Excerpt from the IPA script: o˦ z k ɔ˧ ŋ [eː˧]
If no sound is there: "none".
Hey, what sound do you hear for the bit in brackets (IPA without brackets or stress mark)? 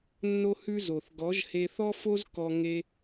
e˧